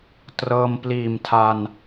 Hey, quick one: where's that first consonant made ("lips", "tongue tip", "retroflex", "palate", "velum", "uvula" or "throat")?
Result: tongue tip